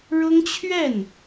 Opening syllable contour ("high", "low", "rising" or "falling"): high